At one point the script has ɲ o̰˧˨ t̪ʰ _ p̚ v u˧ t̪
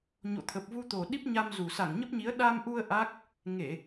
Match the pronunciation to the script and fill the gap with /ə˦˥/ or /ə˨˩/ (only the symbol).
ə˨˩